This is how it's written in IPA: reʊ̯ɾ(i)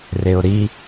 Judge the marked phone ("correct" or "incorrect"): correct